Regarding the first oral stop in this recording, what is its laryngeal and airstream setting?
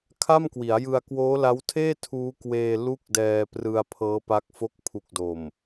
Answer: aspirated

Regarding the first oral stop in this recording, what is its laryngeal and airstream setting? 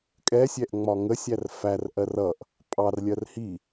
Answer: ejective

